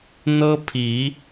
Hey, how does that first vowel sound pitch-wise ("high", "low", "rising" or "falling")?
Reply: high